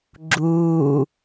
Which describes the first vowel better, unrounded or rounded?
rounded